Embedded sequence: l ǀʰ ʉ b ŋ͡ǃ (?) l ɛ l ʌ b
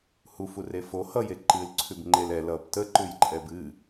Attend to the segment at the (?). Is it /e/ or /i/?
e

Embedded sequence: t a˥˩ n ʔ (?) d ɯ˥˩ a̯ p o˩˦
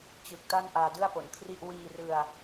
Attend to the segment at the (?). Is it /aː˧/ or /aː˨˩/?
aː˧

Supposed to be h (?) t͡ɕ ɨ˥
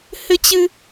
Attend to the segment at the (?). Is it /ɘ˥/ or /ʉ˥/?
ɘ˥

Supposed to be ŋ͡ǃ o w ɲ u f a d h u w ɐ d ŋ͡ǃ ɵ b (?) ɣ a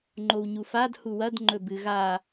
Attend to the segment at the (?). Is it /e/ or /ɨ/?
ɨ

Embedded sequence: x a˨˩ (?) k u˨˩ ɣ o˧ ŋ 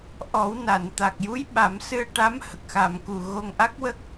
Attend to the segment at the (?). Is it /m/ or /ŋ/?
m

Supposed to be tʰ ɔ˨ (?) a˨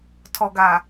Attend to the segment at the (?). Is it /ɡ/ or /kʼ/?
ɡ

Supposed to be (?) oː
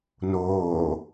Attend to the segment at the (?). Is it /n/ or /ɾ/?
n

